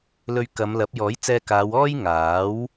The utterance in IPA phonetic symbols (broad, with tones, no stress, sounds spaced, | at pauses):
l ɵ˧ ɥ k ɐ˨˧ m l ɐ˨˥ p̚ j ɔː˨˥ j t͡s ɛː˧ k aː˨˧ w ɔː˥ j ŋ aː˨˥ w